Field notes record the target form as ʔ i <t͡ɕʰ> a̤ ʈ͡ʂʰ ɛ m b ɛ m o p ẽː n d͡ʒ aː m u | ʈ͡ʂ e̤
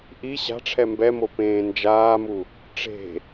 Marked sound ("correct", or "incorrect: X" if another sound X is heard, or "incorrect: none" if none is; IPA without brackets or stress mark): incorrect: ɕ